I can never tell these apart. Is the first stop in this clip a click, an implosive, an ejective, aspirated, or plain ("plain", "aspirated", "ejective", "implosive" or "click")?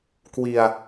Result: plain